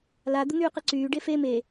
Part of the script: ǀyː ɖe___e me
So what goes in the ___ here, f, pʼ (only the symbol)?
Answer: f